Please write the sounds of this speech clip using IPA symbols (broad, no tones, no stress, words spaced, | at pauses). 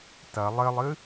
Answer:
tɐ lˠɘlˠɨ